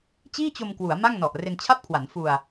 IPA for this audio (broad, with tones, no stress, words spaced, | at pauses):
t͡ɕiː˥˩t͡ɕo˧mkwu˩˦a̯ ma˥˩ŋnɔ˨˩ʔ re˧nt͡ɕʰa˥˩p̚kʰwa˩˦n fu˧a̯